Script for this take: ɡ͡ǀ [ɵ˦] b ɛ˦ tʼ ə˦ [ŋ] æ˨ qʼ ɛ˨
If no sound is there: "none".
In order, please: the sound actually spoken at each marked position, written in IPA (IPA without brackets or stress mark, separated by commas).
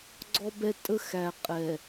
ɔ˦, x